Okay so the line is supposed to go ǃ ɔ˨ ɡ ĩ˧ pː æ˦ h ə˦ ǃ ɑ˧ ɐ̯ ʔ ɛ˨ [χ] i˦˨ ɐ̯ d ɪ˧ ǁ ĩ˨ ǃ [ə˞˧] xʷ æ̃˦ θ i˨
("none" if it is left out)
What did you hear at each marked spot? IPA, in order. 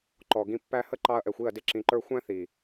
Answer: xʷ, ə˞˧

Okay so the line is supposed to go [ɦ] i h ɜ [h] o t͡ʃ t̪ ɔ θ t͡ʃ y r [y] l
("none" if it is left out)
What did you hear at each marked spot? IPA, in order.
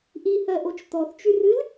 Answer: ʔ, ʔ, ɨ

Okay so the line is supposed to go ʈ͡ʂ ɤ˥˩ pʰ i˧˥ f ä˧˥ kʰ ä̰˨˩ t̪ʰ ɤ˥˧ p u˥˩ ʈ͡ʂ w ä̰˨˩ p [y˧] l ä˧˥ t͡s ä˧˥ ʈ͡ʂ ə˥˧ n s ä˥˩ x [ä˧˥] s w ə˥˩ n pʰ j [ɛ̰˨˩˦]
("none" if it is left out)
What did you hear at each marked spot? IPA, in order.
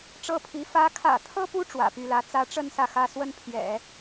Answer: y˥˩, ä˥, ɛ̰˨˩˦

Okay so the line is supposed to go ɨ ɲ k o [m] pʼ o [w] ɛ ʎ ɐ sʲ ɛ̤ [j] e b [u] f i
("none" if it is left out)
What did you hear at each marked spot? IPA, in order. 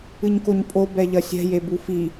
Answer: ɲ, b, j, u

